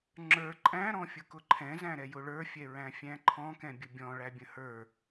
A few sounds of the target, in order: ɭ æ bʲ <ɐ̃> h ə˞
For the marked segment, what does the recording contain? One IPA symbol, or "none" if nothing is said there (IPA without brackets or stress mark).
ə̃